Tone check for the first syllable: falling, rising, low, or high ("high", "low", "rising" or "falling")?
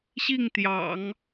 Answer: falling